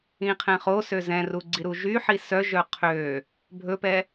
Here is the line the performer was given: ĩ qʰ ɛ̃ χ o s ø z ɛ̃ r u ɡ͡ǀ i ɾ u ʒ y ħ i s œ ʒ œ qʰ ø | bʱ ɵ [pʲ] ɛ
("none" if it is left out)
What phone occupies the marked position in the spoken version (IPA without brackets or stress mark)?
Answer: p